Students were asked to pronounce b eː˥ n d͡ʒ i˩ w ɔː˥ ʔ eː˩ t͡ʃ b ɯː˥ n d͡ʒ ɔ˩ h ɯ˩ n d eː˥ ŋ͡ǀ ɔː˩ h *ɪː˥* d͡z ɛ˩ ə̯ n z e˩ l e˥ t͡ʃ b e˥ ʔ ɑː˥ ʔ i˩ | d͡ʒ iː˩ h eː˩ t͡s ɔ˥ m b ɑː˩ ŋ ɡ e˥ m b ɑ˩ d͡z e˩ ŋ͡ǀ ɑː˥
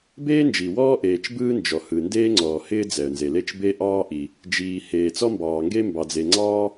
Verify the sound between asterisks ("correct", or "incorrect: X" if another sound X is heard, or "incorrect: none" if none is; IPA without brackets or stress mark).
correct